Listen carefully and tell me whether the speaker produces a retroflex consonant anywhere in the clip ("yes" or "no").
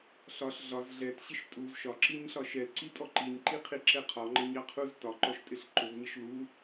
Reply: no